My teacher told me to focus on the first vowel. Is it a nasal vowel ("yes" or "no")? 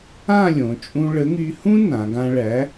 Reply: yes